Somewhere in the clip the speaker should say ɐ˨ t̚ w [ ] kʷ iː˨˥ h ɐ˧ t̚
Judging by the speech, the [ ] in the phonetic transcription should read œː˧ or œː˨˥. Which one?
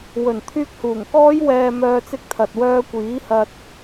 œː˧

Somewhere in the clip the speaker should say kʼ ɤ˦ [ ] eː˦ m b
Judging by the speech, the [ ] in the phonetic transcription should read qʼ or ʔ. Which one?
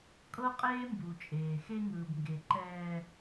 qʼ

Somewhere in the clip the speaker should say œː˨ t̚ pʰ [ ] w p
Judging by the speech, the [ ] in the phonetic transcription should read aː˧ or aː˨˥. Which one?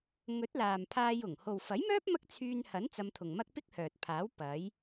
aː˨˥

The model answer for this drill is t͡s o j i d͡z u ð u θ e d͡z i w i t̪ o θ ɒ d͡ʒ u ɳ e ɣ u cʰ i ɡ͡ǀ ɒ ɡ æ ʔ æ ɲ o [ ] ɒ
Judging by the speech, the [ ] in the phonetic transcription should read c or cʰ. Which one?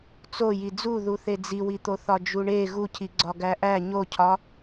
cʰ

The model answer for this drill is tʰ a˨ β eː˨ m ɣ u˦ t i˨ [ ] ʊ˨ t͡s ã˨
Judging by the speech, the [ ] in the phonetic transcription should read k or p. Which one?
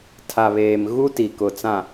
k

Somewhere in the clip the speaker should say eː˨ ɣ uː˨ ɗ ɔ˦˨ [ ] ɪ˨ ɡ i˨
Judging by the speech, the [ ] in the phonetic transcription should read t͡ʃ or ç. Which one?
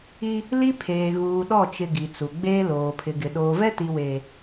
t͡ʃ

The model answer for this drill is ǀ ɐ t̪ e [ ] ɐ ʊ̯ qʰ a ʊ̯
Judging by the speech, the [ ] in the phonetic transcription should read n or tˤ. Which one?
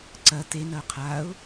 n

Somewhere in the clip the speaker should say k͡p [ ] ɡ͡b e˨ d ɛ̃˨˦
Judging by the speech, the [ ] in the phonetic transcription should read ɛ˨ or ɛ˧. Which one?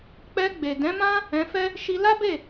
ɛ˧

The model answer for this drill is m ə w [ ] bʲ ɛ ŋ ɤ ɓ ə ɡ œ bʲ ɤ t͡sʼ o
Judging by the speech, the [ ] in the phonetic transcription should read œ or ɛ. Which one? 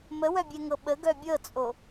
œ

